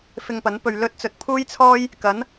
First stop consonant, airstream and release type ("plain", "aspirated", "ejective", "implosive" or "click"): plain